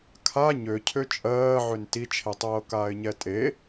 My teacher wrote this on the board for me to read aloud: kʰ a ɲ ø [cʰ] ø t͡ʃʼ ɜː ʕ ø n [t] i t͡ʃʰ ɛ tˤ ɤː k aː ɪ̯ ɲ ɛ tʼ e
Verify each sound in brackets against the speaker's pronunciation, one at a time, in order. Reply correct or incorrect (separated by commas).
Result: correct, correct